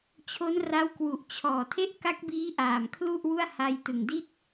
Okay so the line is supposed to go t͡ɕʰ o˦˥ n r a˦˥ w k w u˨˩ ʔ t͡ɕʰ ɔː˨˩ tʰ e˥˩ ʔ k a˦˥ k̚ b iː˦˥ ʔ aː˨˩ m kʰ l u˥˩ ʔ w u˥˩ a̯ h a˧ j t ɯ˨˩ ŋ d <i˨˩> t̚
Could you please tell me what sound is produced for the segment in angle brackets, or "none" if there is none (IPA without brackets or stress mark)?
i˥˩